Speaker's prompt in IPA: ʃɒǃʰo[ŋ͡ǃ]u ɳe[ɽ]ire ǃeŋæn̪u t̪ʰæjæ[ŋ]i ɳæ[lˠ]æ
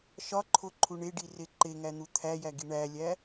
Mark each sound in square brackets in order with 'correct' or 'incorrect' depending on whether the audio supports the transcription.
incorrect, incorrect, incorrect, incorrect

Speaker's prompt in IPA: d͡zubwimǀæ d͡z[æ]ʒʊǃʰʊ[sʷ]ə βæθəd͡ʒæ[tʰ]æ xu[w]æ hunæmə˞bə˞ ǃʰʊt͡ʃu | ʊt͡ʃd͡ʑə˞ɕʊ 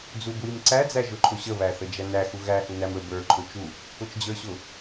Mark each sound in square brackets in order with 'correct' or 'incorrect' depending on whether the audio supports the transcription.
correct, incorrect, incorrect, incorrect

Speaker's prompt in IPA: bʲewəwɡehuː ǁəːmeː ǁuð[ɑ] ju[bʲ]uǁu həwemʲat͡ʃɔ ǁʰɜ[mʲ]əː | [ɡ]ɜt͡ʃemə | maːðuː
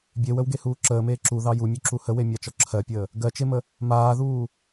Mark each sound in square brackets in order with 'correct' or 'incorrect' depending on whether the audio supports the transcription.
correct, incorrect, incorrect, correct

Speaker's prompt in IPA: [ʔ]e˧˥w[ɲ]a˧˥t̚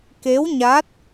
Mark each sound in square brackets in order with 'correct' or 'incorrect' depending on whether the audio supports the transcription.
incorrect, correct

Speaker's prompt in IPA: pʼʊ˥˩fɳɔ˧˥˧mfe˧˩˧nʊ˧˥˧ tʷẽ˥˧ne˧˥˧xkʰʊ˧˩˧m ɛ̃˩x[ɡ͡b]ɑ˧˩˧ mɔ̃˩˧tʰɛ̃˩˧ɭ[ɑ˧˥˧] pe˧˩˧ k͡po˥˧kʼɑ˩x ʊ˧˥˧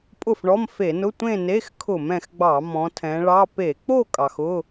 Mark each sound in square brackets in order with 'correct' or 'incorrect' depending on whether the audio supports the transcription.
correct, correct

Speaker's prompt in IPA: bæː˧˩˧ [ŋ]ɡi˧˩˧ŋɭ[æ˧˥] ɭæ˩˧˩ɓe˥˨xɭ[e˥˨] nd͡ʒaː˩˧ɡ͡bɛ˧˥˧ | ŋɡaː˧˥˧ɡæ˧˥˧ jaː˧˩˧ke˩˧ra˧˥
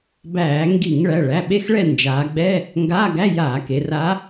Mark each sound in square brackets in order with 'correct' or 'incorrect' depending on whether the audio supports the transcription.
correct, incorrect, incorrect

